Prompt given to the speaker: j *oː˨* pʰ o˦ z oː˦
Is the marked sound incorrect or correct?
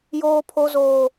incorrect